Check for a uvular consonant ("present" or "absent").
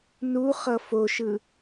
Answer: present